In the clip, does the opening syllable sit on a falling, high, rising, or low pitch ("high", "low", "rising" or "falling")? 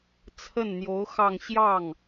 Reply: falling